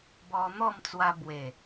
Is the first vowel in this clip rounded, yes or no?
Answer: yes